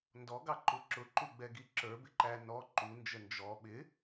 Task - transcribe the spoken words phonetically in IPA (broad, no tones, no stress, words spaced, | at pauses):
ndɔɡɑǃu ǁʊǃuɡ͡bɛɡi ǁə˞bɪ ǃæ nɔ ǃund͡ʒə nd͡ʒɔ ɓɪ